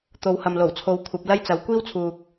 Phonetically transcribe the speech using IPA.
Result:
t̪ o˨˥ w h ɐ˨ m l o˨˩ w t͡sʰ o˨˥ w kʷʰ ɐ˨˥ p̚ l ɐ˥ j t͡s ɐ˨˧ w kʷ iː˥ w t͡sʰ uː˨ k̚

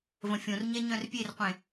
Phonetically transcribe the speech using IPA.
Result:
v ə̃ fʲ õ r ɲ ɛ ɲ œ̃ r pʲ e r qʷ ẽ

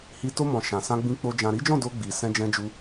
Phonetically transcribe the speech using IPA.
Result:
h i˧ t o˧ m ɔ̃˨ ʃ ã˨ s ã˧ ɡ͡b ĩ˧ k͡p o˧ d͡ʒ ã˨ ɾ i˨˦ d͡ʒ ɔ̃˦˨ d o˧ ɡ͡b i˨ s ɛ̃˧ d͡ʒ ɛ̃˧ d͡ʒ u˧

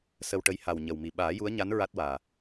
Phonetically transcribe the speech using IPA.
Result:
s ə˧ w ʈ ə˧˥ j h a˨˩ w ɲ ə˨˩ w m i˨˩ ɓ aː˨˩˦ j u˧˥ ə̯ ɲ a˧˥ n ɹ a˦˥ t̚ w aː˨˩

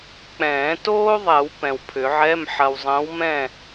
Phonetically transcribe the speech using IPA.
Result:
k͡p ɛ̃ː˨˩˦ t oː˥ ðˤ ɛ˨˩˦ w p ɛ̃˨ w pʰ ʏ˨˩˦ ʕ ɛ˧˥˧ m ħ ɐ˨ w zˤ ə̃ː˨˥ w m ɛ̃˥˨

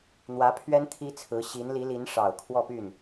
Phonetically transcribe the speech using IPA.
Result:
n̪ w ä˧˥ pʰ ɥ ɛ˥ n t̪ʰ i˥ t͡sʰ ɹ̩˧˥ ɕ i˧˥ n l i˧˥ l i˧˥ n ʂ ɑ˨˩ ʊ̯ kʰ w ɔ˥˧ p y˥˩ n

